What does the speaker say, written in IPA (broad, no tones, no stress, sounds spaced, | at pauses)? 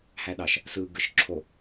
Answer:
h æ ɗ ɑ ʃ | s ɯ ɡ ɯ ʃ ǁʰ o